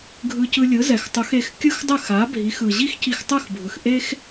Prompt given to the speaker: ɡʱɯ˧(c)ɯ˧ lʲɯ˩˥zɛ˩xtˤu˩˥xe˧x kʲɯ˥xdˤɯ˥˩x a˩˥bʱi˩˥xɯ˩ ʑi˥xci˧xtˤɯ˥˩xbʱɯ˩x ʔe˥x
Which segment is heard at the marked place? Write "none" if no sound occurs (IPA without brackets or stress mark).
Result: c